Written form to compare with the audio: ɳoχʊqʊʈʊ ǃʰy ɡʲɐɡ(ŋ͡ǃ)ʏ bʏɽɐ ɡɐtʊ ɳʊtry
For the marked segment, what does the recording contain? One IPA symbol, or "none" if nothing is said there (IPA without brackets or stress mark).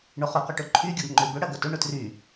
ŋ͡ǃ